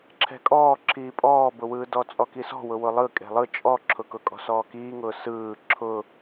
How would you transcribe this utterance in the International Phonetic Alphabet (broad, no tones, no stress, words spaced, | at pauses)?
ǁʰɛ̤kʼɔːǁʰiː pʼɔːbʊwɯːdɔ t͡sʼɔkisɔ̤wʊ wʊlˠɯ kʼe̤lˠɯ t͡ʃʼɔǁʰʊkʊ kʼɔ̤sɔːkiːŋʊː sɯː ǁʰʊ